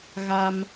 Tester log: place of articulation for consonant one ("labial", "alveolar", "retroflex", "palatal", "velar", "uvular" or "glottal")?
velar